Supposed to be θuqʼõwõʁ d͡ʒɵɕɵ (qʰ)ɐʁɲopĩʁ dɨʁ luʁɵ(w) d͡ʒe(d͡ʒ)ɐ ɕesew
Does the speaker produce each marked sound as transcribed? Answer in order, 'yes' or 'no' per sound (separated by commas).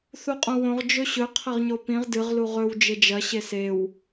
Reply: yes, yes, yes